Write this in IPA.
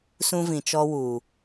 s ũ˦ v ĩ˨ t͡ʃ ɔ˦ w uː˨

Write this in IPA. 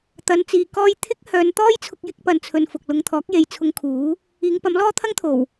t̪ ɐ˨˧ n t͡s iː˨˧ k ɔː˥ j t̪ʰ ɪ˥ k̚ h œː˨˧ n t̪ ɔː˥ j t͡sʰ ʊ˧ k̚ j ɪ˧ k̚ p ɐ˨ n t͡sʰ ɵ˨ n f ʊ˨ k̚ l ʊ˧ ŋ t̪ʰ ɔː˨˥ k̚ j e˨ j t͡sʰ ʊ˧ ŋ kʰ uː˨˥ | iː˨˧ ŋ p ɐ˨˥ m l ɔː˥ t̪ʰ ɐ˥ ŋ t̪ʰ o˨˩ w

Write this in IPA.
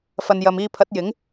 f ɐ˨ n j ɐ˨ m iː˧ pʰ ɐ˨˥ t̚ j ɪ˨˥ ŋ

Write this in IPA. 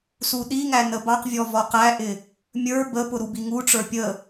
s u ɗ i ŋ æ n ə b ɑ q vʲ ɔ v ɔ q æ ʔ ɪ | mʲ ə˞ b ə p ʊ ɾ u b i ŋ u ʈ͡ʂ ə˞ pʲ ə

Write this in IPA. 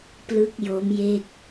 p l ɯ˦˥ k̚ j o˦˥ m j e˥˩ k̚

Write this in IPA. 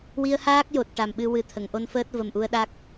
w i˧ ə̯ h aː˦˥ k̚ j o˨˩ t̚ ʈ a˨˩ m ɓ ɨ˧ w ɨ˨˩ t̪ʰ ə˨˩˨ ŋ ʔ o˧ n f əː˦˥ t̚ v ə˨˩ m ʔ u˧ ə̯ ɗ a˦˥ k̚

